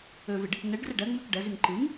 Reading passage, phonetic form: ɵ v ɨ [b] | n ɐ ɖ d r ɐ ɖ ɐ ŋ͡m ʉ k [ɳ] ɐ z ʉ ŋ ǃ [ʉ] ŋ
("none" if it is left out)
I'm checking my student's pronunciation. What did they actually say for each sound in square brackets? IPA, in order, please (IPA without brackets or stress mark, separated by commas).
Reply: ɖ, ɖ, ɨ